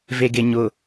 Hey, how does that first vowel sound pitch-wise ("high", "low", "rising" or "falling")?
low